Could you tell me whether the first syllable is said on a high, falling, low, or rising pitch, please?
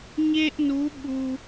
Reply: high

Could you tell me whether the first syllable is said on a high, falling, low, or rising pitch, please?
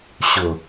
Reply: low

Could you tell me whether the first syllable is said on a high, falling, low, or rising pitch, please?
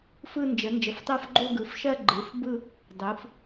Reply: falling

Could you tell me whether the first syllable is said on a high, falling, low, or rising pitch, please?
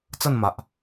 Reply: falling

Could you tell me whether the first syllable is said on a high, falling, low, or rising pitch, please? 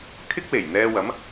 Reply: high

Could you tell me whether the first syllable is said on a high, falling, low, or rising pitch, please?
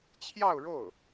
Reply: falling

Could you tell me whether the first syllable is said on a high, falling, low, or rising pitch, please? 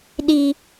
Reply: high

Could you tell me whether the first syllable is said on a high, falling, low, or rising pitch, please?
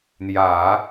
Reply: low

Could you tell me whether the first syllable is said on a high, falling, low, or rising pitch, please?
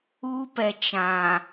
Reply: high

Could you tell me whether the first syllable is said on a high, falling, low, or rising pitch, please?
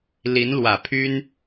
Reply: rising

